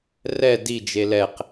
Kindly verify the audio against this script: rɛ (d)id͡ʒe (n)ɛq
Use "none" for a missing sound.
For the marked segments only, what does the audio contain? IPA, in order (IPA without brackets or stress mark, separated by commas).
d, l